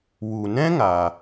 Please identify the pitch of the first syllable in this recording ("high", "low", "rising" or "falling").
low